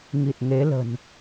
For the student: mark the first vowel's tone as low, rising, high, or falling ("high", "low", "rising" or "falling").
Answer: low